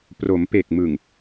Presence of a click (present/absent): absent